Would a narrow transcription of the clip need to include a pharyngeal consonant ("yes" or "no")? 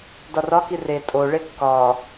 no